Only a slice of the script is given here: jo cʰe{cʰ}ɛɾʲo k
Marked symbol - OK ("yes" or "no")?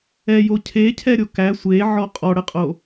yes